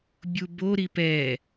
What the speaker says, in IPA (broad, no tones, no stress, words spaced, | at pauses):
bʲubo ɾipɛ